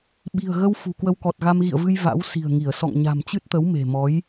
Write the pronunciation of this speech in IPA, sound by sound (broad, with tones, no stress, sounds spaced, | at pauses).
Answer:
ɓ i̤˨˩ ə̯ ɣ ə˧ w f ṳ˨˩ k w ə˧ w k ɔ˨˩ t̚ ɣ a˧ m ɣ ḭ˧˨ ə̯ v ɨ˧ j v a̰˧˥ w s i̤˨˩ ə̯ ŋ i˧˩ ə̯ s ɔ̰˧˨ ŋ ɲ a̤˨˩ m t͡ɕ ɨ˦˥ t̚ t̪ ə˨˦ w m e̤˨˩ m ɔ˨˦ j